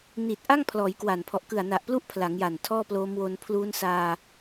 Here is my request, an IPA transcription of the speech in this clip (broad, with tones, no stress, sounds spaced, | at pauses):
n i˨˩ t̚ ʔ a˥˩ ŋ pʰ l ɔː˩˦ j k w a˨˩ n pʰ ɔ˨˩ ʔ k ɯ˨˩ a̯ n a˨˩ ʔ p l u˦˥ ʔ pʰ l a˩˦ ŋ j a˨˩ n tʰ ɔː˥˩ p l oː˦˥ m w o˧ n pʰ l uː˦˥ n s aː˧